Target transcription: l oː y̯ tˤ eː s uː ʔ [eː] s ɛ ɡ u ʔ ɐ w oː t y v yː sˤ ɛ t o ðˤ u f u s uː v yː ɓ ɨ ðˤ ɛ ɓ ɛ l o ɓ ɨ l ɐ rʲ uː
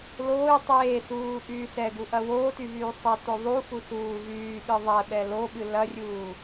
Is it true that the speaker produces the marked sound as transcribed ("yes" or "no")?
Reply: no